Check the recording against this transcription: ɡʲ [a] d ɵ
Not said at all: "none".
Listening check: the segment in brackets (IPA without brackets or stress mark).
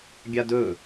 a